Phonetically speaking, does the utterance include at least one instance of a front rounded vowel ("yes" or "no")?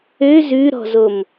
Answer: yes